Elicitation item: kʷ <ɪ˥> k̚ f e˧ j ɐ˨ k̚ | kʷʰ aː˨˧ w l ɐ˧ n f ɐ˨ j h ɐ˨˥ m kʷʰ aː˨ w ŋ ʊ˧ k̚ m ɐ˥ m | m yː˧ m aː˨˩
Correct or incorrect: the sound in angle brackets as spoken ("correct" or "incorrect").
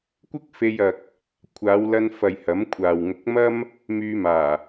correct